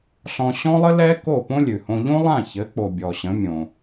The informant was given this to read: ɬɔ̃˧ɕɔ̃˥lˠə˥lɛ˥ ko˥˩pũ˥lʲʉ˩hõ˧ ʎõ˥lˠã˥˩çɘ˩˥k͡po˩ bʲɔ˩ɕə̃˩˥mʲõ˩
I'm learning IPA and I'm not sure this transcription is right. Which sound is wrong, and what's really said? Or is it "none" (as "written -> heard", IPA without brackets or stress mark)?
ũ˥ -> õ˥